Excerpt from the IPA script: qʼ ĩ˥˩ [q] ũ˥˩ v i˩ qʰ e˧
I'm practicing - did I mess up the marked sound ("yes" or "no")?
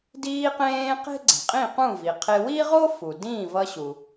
no